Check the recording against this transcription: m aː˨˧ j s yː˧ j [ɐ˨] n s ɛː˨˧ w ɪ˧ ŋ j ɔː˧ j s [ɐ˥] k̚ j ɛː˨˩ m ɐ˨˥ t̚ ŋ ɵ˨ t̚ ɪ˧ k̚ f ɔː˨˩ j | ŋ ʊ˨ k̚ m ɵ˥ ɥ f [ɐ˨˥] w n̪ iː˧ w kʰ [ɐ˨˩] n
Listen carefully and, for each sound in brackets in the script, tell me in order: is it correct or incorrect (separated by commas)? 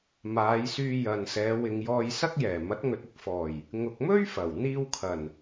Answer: correct, correct, incorrect, correct